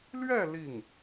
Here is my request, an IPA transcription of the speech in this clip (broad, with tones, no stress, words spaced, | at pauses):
lɥɛ˥˧ li˥˩ŋ